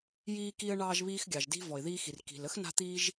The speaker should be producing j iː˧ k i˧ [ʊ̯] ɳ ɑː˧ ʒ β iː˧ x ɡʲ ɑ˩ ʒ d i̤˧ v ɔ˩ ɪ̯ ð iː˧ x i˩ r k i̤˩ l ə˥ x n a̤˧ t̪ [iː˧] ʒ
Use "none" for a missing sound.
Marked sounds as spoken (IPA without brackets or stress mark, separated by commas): ə̯, iː˧